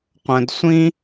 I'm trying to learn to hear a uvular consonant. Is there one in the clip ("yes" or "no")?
yes